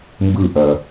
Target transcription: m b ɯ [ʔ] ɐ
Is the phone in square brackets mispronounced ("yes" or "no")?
no